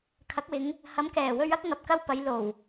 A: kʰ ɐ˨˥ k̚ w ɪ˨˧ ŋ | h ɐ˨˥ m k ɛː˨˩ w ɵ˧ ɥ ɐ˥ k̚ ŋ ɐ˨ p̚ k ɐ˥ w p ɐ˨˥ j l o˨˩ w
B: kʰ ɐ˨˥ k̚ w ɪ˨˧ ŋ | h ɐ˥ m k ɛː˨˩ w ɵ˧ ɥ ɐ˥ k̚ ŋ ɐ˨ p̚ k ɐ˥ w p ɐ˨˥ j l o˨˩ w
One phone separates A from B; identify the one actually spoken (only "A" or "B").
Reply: A